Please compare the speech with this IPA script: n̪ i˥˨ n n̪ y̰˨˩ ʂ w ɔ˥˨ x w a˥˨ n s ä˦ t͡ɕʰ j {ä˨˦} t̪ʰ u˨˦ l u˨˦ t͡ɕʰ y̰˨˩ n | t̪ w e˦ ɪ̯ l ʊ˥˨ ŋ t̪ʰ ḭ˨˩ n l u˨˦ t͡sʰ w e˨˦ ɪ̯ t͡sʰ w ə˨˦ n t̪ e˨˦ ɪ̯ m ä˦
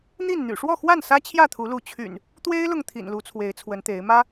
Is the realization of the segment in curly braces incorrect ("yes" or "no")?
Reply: yes